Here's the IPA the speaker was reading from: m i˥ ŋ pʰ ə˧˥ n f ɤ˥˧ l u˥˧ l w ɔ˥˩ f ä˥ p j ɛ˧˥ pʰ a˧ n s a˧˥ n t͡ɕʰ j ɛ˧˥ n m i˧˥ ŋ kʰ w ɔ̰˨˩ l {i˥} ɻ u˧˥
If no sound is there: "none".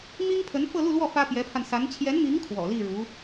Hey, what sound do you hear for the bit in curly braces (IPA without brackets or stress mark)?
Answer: i˥˩